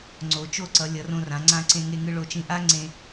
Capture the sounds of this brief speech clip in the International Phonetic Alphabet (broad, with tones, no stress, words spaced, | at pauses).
ŋ͡ǀo˩˧t͡ʃo˥˧ǀʌ˩˧ lʲʌ˩˧rõ˧rã˩˧ ŋ͡ǀã˧ ǀẽ˧ŋe˧ŋɯ˧ ɭo˧˩t͡ʃĩ˧ ʔa˥ ŋ͡ǀẽ˧